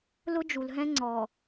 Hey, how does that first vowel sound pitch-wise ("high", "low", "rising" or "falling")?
high